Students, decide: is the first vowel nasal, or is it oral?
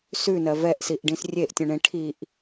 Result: oral